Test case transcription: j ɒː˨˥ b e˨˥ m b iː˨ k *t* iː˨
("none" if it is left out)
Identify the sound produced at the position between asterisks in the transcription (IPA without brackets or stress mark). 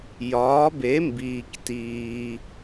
t